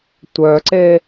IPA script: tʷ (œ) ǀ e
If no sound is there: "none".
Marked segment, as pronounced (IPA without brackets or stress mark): œ